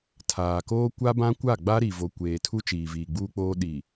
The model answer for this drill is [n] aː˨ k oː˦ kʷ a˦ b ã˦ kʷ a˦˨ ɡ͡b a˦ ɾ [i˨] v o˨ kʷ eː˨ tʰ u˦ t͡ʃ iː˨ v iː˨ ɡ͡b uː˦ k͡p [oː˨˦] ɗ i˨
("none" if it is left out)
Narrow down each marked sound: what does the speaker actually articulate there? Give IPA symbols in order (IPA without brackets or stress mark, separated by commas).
tʰ, i˨, oː˦